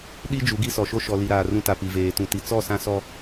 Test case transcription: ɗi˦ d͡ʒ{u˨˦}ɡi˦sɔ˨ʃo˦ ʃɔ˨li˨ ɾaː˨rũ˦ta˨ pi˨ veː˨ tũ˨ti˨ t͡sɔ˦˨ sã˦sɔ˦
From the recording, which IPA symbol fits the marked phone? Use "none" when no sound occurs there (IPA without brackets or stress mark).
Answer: u˨˦